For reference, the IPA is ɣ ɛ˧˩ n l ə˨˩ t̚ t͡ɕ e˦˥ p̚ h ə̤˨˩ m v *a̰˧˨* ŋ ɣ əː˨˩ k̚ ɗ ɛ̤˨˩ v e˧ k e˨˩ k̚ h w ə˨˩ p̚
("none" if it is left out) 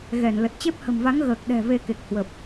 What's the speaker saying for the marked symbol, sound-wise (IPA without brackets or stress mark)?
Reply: a˨˦